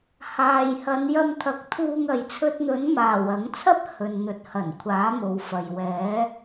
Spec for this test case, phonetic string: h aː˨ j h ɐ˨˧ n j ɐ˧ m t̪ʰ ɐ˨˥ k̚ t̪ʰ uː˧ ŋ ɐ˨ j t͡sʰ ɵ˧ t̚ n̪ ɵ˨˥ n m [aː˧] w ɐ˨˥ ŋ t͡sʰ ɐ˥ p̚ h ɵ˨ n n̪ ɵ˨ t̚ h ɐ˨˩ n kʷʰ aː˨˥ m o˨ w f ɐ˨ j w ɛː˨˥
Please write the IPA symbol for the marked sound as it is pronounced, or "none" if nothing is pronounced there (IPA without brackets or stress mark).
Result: aː˨˩